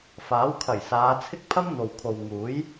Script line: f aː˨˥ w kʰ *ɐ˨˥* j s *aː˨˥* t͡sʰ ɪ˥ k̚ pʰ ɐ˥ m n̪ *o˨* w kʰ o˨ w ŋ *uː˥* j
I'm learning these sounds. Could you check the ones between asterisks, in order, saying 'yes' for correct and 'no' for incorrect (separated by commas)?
no, no, yes, no